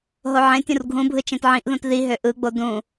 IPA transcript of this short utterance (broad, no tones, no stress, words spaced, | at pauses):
ɦoʕẽtʲũr ɡʱũbʱɯ t͡ʃẽtʕĩʔðũt ði ɦøʔɯɡ͡bo dũ